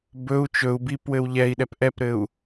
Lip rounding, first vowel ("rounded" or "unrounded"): rounded